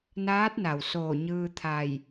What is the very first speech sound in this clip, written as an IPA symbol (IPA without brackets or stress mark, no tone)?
n